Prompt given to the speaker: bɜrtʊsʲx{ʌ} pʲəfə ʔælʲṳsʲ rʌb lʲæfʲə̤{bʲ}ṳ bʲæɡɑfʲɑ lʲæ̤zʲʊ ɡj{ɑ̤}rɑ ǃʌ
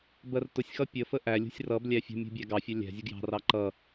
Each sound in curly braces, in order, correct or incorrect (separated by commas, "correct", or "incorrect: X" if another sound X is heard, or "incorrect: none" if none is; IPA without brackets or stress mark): correct, incorrect: mʲ, correct